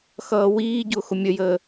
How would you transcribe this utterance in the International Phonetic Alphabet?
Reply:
x ʌː w iː ɟ ʊː x ʊ mʲ ə j əː

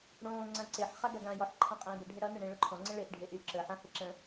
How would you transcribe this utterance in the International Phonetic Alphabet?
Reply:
ɽ õː ŋ͡ǀ ã ǀ e ħ χ a ɡ a ɡ ãː j ɔ ħ ǃʰ ã qʼ ẽː b ə ɖʱ ə ɽ ʌ n ʌ ɳ ẽ ɭ ɵ ǃʰ ɔ̃ ŋ͡ǀ ə̃ ɭ e ʔ ɖʱ e ʔ yː ǁ əː ħ ã h e ǁ ə̃

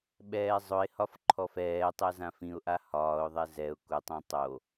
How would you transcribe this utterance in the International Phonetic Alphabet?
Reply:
ɓ ɛː zˤ ʊ ɪ̯ h ɒ f ǃʰ ɔ f ɛː tˤ ɛ z ã f ĩ ʊ̯ ʔ a h ɒː ʊ̯ ðˤ ɛ z ɛ ʊ̯ k ʊ tˤ ɛ̃ tˤ o

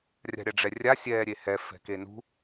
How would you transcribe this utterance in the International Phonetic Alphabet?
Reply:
rʲ a̤ ɾʲ a ɖ͡ʐ ɛ rʲ a sʲ ɛː ɾʲ e h ɛ f ɛ̤ k e n ṳ

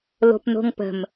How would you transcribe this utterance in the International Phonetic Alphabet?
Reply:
l o̤ p n o̤ ŋ p ə̤ m

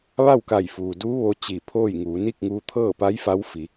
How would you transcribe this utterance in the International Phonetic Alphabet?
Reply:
ʋ a˥˨ w k a˧˩ j f uː˩ d uː˧˥ ʋ o˧˥ t͡ɕ i˧˩ pʰ oː˥˨ j ŋ uː˩˧ n iː˥˨ k̚ ŋ uː˧ t̪ʰ ɤː˥˨ p a˧˥ j f a˧˥ w f i˩˧

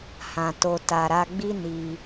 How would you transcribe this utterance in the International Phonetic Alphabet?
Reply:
h ã˨ t o˨ t a˨ ɾ a˧ ɡ͡b i˦ n i˧

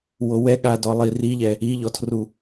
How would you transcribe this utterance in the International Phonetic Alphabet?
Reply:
w o w ɛ ɠ a d ɔ lˠ i r i ʎ ɛ | i ʎ ɔ tʰ r u

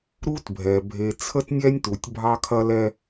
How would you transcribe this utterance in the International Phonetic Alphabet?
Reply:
ɾ u˦ t bʱ ɛ˨ bʱ e˨ t͡sʰ ə˦ t nʲ ɛ˦ nʲ t u˨ tʲ bʱ ɑ˦ kʰ ɐ˦ l ɛ˦

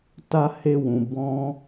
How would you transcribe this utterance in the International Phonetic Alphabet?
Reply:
t a˦ h e˦ w ũ˧ b ɔ̃˧

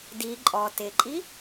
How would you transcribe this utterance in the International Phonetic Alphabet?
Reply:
d i ǃʼ ɔ t ɪ ǃʼ i

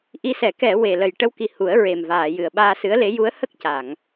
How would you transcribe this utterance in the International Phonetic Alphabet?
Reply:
ʔ i˧˥ s ɛ˨˩˦ k ɛ˨˩˨ w e˨˩ l ə˨˩ j ʈ ə˧˥ w k i˨˩ h u˨˩˦ ə̯ ɹ e˨˩ m v aː˨˩˨ j ɨ˨˩ ə̯ ɓ aː˧ s ɨ˧˥ ə̯ l e˧˥ j u˧˥ ə̯ h ə˦˥ k̚ c a˨˩˨ ŋ

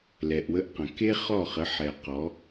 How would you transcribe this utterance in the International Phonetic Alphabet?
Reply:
l ɛ˨ ʔ w ə˦ ʔ q ə̃˨ k e˦ χ ɔ˦˨ χ ə˨˦ ħ ɛ˨ q ɔ˨˦

